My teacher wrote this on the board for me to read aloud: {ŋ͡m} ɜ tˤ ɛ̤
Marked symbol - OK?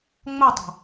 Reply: yes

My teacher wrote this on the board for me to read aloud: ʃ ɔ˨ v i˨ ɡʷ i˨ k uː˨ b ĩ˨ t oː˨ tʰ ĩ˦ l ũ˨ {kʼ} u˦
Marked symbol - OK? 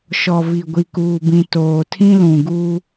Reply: no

